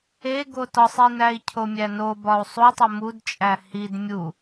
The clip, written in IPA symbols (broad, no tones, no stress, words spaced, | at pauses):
eɡo tɒsˤinæi̯ cʰomʲæno bɒu̯sˤutˤo mud t͡ʃʼæhid mʲu